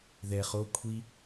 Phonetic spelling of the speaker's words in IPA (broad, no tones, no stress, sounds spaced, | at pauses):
ð ɛ χ o kʷʰ i